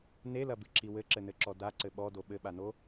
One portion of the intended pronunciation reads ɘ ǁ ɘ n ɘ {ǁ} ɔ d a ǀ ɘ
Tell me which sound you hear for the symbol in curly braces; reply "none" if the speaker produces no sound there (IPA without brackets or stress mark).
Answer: ǁ